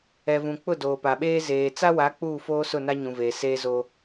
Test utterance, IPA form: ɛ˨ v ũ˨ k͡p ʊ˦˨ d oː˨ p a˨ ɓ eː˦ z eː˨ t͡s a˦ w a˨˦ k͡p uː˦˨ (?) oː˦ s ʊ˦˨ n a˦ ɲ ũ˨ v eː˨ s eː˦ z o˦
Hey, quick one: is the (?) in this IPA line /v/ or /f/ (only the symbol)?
f